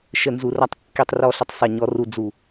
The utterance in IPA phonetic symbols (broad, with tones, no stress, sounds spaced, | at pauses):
ʃ ə˨ n z u˨ r a˧ tˤ kː i˨ tˤ r ɔ˨ ɬ ə˨ tˤ sˤ e˨ ɲ ɔ˨˦ r u˨ d͡z u˨